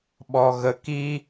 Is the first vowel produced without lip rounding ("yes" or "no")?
no